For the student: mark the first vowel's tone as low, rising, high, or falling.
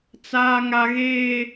high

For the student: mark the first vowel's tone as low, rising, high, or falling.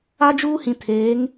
high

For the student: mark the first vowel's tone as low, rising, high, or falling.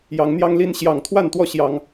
rising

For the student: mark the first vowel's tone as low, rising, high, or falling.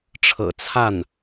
low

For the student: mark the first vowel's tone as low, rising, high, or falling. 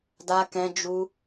high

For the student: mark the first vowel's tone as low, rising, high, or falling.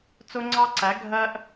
high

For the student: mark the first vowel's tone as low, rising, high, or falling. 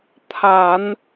low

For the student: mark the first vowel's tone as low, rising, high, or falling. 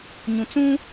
low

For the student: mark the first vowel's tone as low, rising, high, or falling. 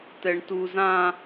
high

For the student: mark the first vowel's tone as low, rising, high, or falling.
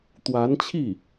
rising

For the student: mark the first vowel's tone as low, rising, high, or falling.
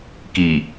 low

